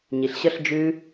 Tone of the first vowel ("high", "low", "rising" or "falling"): low